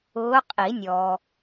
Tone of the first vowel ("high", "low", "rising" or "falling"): rising